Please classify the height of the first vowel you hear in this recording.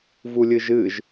high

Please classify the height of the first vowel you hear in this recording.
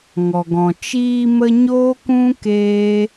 mid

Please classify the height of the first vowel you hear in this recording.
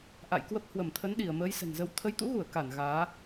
low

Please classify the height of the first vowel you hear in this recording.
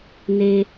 mid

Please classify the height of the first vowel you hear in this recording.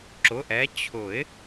high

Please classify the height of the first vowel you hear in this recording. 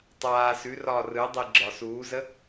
low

